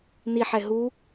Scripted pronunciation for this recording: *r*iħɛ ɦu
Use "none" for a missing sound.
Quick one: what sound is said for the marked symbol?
n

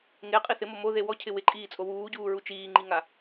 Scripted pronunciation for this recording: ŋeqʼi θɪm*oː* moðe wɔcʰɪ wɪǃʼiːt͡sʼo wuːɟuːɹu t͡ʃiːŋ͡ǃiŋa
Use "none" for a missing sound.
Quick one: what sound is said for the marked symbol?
o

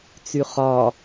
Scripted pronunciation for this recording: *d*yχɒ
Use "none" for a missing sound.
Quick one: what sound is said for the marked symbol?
t͡s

